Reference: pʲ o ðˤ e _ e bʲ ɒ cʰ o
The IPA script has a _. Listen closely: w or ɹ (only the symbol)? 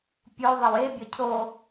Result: w